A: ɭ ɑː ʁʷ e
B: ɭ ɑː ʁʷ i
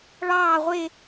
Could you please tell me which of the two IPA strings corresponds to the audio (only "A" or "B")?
A